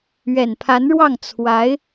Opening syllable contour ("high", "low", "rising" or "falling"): low